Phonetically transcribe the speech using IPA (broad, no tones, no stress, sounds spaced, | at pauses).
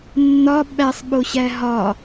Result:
nː ɒ ɓ æ sˤ ɓ o ɕ æ ɦ ɒ